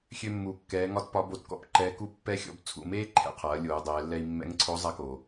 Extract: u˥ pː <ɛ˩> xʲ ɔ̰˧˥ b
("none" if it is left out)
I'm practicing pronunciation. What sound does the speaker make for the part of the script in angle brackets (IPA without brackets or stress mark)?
ɛ˥